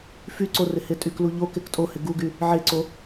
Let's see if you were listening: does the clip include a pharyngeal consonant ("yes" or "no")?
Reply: yes